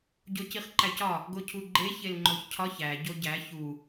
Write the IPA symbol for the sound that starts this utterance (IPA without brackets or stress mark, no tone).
ɟ